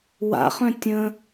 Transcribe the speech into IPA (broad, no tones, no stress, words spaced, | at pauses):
wa̰χœ̃ tʲə̃